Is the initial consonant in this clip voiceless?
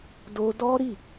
no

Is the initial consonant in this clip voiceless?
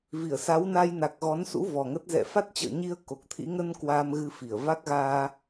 no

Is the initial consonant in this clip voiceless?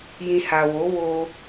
no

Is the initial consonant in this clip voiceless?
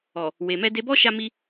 no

